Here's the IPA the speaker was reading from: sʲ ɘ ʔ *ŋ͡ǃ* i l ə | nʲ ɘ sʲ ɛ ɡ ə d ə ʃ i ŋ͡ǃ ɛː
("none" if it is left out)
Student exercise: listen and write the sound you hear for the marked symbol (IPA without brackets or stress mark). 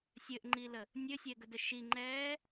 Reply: ŋ͡ǃ